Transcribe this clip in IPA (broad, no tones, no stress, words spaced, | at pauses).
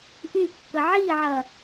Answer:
ʔykːə ʕiʕɐ